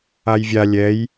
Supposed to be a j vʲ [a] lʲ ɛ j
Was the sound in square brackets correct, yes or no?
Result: yes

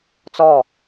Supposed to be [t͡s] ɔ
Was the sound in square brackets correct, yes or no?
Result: yes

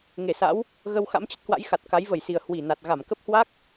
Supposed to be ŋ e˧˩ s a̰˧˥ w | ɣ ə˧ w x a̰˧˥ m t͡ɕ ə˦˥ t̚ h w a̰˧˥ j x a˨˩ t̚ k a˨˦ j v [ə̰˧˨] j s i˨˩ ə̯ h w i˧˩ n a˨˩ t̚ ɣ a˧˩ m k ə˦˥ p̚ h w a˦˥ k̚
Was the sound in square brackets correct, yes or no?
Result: no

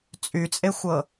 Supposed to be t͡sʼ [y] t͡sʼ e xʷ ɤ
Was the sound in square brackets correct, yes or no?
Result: yes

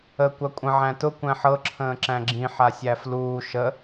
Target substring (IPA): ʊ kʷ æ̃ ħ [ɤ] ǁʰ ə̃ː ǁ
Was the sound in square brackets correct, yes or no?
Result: yes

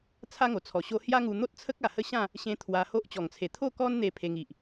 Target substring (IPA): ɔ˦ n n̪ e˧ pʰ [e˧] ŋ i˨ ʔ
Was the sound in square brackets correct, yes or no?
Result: yes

